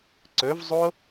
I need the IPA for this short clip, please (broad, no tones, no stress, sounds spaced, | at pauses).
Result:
ǀ ɵ v zˤ o